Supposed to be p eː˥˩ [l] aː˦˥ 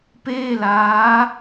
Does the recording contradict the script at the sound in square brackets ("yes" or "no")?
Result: no